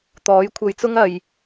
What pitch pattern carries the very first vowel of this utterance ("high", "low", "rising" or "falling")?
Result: rising